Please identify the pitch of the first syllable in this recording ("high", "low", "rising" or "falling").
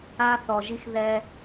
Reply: high